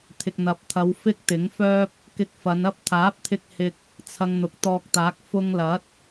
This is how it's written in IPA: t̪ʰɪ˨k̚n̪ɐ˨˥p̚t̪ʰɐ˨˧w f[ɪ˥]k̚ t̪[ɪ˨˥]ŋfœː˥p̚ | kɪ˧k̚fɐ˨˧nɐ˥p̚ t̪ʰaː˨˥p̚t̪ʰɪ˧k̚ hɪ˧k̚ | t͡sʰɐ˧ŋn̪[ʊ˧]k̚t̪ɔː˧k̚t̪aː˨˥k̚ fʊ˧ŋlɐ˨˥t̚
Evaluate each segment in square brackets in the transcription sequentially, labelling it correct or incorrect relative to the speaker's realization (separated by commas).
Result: correct, correct, incorrect